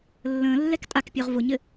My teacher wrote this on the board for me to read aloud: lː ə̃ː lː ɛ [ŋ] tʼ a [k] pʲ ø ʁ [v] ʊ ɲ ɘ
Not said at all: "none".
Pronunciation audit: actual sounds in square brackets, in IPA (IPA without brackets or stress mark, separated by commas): k, k, v